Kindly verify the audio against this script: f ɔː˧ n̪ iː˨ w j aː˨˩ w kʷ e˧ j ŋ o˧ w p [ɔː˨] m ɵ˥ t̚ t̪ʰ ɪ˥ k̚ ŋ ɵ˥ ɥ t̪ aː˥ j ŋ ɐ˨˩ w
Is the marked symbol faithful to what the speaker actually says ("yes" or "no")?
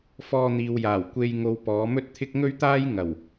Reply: no